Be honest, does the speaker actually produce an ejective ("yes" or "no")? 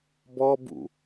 no